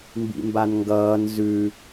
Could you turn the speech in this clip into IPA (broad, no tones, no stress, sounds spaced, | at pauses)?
m b ḭ m b a n ŋ ɡ ʌː n z ʉ